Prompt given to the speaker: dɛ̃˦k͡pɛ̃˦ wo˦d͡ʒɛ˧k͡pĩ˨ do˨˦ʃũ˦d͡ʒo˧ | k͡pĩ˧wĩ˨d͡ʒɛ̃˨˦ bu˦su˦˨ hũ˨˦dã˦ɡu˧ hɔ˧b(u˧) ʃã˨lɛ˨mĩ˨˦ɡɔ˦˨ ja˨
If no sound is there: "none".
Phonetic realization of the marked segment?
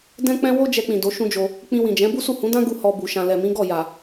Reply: u˨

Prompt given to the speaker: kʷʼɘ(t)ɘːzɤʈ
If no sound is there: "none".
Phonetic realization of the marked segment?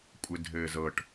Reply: dʱ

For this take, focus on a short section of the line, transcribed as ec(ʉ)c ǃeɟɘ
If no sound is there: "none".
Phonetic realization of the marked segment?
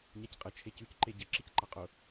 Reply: ʉ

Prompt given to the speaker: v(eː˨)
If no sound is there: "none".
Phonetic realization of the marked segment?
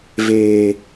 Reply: eː˦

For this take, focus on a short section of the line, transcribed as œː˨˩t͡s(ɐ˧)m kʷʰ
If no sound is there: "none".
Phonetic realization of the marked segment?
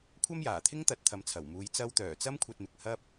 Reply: ɐ˥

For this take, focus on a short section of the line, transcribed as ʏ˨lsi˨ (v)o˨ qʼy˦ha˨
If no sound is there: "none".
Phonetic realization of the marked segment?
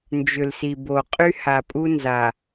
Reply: b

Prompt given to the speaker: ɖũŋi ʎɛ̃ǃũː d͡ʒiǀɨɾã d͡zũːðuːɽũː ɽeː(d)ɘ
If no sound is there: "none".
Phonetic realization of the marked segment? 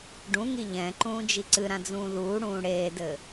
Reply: d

